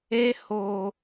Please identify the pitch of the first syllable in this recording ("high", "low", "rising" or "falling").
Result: high